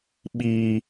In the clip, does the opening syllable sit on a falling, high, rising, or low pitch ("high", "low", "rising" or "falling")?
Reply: high